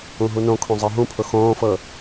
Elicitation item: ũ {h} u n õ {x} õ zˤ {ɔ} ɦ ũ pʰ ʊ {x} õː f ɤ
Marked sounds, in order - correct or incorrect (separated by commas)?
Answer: incorrect, incorrect, incorrect, correct